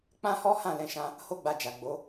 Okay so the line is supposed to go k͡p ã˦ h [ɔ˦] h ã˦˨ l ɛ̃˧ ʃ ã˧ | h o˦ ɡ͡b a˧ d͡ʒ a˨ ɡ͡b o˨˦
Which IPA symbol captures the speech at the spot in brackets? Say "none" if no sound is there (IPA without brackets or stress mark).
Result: ɔ˦